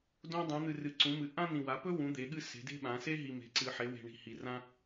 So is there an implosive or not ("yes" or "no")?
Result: yes